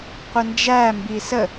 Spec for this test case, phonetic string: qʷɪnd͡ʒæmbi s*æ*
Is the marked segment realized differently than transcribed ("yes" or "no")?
yes